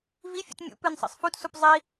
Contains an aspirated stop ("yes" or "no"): no